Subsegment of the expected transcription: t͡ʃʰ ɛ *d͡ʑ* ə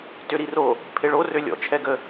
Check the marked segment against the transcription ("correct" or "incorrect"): incorrect